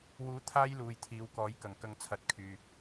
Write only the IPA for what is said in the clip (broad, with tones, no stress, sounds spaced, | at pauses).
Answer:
w uː˨˥ t̪ʰ aː˥ j l uː˨ j t̪ʰ iː˨˧ w k ɔː˨˥ j k ɐ˨ ŋ k ɐ˧ ŋ t͡sʰ ɐ˨˥ t̚ kʰ yː˨